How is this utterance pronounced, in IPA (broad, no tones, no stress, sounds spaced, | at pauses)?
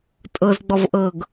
tʼ ɤ z ɡ͡b ɔ v ʔ ɤ ɡ